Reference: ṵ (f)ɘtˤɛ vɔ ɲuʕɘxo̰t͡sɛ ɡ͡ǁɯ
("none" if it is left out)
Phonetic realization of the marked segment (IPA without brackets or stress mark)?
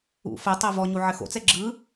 f